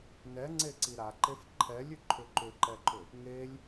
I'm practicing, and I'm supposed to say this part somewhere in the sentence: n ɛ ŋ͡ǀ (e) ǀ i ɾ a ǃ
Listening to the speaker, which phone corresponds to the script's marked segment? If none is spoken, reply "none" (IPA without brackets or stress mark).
e